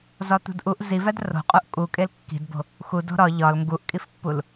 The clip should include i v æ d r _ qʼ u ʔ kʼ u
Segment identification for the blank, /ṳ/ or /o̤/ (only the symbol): o̤